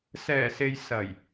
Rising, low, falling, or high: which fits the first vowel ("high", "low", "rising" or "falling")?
low